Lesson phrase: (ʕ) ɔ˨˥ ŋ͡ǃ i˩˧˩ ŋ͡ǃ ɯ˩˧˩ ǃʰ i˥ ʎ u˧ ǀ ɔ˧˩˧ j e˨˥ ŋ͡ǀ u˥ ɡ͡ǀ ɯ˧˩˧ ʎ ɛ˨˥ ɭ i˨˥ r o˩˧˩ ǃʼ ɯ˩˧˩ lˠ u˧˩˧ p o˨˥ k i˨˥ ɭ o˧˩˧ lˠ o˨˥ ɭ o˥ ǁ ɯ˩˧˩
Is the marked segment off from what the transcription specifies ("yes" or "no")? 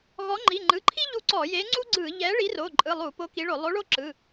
yes